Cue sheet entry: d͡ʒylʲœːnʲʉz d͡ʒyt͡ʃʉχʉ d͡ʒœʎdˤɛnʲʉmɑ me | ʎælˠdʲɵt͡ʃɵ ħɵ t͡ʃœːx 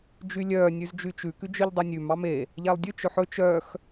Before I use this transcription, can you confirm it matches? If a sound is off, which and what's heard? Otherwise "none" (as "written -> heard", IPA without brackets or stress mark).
χ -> k